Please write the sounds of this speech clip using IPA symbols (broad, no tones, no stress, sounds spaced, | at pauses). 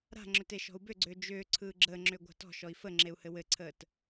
ɾ a̤ ŋ͡ǁ ʏ t e ʃ ɔ̤ u̯ b ʏ ɡ͡ǀ ʏː d͡ʒ ʏː ǀʰ ɯː ɡ͡ǁ əː ŋ͡ǁ ʏː ɡʷ a̤ t ɔ̤ ʃ ɔ i̯ f ə ŋ͡ǁ e u̯ h ɘ w ɘ ǀʰ əː t